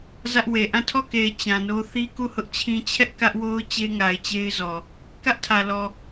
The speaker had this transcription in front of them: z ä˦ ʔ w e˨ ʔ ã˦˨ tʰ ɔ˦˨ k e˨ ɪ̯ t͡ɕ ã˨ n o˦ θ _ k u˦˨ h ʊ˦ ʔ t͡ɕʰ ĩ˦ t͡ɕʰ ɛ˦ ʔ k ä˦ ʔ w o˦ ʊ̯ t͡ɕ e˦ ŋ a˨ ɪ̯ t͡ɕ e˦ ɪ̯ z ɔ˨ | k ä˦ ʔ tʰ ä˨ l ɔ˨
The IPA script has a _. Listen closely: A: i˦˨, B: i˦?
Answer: B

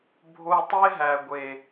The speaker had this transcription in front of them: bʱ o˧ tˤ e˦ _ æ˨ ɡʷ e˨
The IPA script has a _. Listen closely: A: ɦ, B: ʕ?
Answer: A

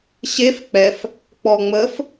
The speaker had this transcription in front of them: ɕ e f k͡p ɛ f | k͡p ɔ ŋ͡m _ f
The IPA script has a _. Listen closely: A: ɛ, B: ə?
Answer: B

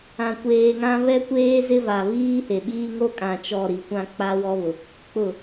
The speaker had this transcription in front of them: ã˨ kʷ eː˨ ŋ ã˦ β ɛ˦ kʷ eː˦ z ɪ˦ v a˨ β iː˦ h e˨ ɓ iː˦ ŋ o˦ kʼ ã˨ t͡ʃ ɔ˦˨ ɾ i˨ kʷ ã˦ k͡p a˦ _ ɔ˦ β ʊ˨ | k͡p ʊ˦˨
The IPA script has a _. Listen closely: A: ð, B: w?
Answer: B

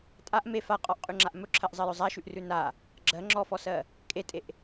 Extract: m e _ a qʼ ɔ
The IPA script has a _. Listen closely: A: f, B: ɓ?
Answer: A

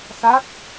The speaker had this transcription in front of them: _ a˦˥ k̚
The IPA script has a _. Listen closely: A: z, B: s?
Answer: B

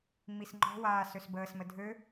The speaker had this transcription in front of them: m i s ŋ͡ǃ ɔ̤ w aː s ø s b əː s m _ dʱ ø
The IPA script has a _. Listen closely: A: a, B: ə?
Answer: B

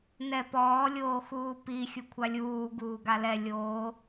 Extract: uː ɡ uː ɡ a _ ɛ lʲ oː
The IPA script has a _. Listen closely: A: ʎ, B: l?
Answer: B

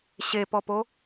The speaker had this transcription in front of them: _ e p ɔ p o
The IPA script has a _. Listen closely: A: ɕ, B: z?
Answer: A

